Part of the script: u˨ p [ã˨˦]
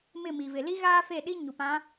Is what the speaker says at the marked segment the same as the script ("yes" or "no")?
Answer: yes